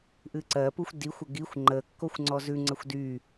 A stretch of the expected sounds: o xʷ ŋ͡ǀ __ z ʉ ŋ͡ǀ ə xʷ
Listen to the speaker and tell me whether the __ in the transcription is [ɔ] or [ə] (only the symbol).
ɔ